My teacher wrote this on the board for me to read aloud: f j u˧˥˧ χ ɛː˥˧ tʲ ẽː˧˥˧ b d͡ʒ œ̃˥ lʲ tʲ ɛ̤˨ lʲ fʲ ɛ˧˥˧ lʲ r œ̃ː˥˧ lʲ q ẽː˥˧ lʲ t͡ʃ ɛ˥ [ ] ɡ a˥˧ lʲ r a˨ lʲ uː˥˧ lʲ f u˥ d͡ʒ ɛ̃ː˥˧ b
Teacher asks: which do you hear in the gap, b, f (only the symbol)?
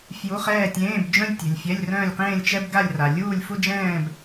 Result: b